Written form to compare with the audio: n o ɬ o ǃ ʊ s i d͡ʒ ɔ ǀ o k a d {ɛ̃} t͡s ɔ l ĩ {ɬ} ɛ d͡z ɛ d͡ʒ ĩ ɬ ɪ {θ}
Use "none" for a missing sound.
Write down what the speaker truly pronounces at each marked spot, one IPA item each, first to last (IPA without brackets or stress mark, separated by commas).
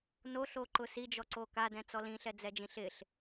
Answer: ɛ̃, ɬ, ɬ